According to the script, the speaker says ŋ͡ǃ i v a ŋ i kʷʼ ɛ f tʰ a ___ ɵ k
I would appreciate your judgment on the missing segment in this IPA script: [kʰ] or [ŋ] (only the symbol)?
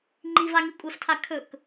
kʰ